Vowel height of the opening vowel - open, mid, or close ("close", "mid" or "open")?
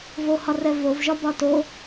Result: mid